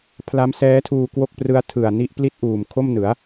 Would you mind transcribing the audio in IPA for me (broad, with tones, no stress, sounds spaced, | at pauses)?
pʰ l a˦˥ m s ɛː˦˥ tʰ uː˧ k w o˥˩ k̚ p r ɯ˦˥ a̯ tʰ ɯ˨˩ a̯ n i˥˩ ʔ p l i˥˩ t̚ ʔ uː˨˩ m kʰ o˥˩ m n ɯ˩˦ a̯